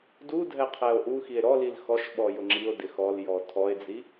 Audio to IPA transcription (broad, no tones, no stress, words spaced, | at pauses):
dudʱɛ qʰɛo̯ʔuxie̯ ɾɔlil xɔʃɓɔ jʊŋ͡ǁio̯dɪ xɔljɔ tʰɔe̯d͡zi